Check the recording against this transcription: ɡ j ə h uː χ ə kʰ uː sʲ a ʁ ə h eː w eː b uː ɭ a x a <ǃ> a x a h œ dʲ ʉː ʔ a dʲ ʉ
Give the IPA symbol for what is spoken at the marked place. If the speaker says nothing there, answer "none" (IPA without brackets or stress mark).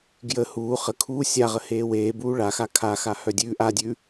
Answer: kʰ